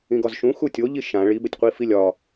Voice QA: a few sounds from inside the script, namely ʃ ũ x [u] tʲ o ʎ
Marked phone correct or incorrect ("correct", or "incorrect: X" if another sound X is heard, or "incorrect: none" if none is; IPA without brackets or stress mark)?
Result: correct